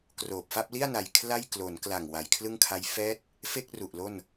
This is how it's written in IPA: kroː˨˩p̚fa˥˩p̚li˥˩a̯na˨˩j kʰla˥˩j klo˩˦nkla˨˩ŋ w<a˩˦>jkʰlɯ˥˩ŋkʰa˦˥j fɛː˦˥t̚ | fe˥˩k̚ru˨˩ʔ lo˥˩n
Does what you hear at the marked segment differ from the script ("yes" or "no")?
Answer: no